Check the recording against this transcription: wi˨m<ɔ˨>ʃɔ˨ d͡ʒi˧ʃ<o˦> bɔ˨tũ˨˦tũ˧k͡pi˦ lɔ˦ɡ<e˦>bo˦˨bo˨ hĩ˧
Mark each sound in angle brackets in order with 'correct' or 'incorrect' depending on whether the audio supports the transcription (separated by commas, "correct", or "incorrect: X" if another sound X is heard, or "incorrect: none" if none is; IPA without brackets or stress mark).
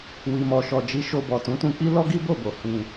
correct, incorrect: o˧, incorrect: i˦